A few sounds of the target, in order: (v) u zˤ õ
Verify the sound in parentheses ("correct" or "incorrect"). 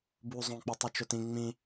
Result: incorrect